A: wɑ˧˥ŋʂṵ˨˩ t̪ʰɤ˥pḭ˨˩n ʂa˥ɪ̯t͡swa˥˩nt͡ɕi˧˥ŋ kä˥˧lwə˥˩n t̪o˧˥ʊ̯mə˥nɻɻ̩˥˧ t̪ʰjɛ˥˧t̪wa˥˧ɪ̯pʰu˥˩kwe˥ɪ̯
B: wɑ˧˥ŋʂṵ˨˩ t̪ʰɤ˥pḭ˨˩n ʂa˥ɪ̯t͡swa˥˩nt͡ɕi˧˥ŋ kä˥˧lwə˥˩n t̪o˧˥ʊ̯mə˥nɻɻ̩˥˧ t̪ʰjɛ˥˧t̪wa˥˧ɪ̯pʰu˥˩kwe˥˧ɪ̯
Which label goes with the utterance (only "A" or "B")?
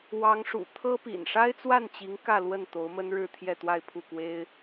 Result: A